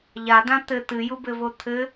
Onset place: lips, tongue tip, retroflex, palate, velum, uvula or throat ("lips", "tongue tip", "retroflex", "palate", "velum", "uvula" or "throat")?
palate